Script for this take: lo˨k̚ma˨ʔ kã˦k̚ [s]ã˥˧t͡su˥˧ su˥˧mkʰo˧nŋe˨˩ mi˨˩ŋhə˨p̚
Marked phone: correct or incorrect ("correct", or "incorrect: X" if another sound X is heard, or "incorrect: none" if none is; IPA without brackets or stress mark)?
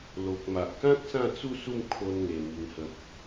correct